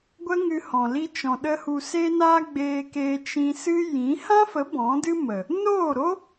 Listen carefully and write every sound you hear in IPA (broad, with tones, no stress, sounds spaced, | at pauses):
ɡʷ ə˦ ŋ ɨ˧ h ɔ̃˨ l i˧ t͡ʃ ɔ̃˨ ɗ ə˧ h u˨ s e˧ n a˧ ɡ͡b eː˧ k e˧ t͡ʃ ĩ˧ s ɨ˦ j ĩ˨˦ h ã˦ f ə˨˦ b ɔ̃˨˦ d ɨ˦ m ə˨ | n oː˦˨ ɾ o˦